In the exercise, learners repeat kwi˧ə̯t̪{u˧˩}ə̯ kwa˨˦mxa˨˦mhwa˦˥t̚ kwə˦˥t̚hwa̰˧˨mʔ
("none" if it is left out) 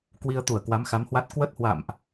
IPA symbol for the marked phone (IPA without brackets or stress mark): u˧˩